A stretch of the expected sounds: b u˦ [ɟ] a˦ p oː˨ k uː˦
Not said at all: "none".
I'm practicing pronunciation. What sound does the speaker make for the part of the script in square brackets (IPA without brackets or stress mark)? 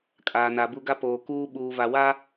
ɡ